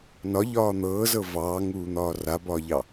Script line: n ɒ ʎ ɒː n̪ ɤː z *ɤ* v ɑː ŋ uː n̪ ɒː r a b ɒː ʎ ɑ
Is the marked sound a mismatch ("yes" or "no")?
no